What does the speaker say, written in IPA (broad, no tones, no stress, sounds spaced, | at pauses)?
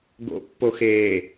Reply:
ɡ o̰ pː o x eː